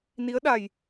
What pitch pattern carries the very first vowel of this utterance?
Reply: rising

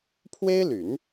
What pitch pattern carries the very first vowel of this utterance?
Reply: high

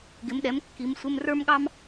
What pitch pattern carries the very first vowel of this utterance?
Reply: rising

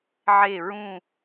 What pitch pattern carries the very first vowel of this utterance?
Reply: falling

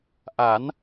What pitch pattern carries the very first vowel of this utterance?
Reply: rising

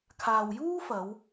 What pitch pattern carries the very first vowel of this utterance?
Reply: low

